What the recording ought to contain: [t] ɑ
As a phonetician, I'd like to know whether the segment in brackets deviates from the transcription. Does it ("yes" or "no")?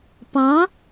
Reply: yes